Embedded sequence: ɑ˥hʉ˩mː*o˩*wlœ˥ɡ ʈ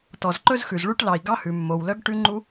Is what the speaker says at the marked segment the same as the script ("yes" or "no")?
yes